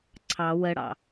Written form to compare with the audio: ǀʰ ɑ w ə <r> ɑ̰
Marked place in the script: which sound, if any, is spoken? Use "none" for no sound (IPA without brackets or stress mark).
ɽ